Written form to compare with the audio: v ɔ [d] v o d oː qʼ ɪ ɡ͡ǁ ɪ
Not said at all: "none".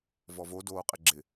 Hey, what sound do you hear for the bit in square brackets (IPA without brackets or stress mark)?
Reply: none